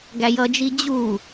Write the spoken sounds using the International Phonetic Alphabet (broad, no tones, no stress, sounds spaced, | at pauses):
ɡ æ j ʌ d͡ʒ i d͡ʑ u